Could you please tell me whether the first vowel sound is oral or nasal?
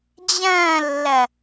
nasal